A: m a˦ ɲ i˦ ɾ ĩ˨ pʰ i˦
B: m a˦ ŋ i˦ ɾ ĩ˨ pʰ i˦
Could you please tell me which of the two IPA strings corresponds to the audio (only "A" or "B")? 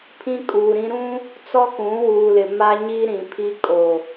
A